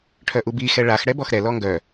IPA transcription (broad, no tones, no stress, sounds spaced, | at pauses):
ʈʰ œ ʔ u b i x ɛ ɭ a x ɽ ɛ b ɔ x ɾ ɛ l ɔ ŋ ɡ œ